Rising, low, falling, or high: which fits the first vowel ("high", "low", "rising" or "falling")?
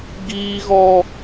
high